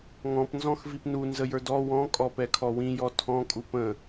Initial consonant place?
velar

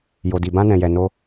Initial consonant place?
palatal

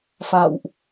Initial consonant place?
labial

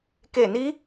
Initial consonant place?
velar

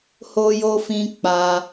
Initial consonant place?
glottal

